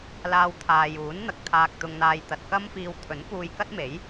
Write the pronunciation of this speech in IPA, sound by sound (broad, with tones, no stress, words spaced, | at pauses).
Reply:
laː˧wt̪ʰaː˨juː˨˥n n̪ɐ˧k̚t̪ʰaː˧k̚t̪ʊ˧ŋn̪aː˧j t̪ɐ˨t̚kɐ˥mfiː˧w t̪ʰɵ˨˥npuː˧jkɐ˥t̚ me˨˥j